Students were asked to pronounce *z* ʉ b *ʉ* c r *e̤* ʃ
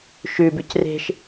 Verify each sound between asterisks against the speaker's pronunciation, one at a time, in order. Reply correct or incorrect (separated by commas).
incorrect, correct, correct